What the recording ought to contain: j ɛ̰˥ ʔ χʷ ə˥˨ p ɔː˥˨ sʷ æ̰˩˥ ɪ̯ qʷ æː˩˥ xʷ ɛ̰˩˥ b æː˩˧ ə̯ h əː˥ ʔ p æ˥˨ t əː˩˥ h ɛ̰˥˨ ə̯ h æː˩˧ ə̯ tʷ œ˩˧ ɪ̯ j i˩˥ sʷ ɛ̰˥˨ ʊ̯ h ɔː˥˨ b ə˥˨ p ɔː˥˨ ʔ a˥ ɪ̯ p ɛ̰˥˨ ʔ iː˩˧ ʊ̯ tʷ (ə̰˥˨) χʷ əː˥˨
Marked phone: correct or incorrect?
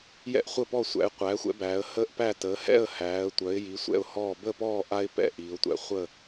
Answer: incorrect